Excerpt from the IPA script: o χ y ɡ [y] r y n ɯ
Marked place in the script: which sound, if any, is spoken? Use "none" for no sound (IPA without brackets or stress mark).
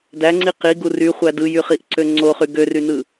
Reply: ø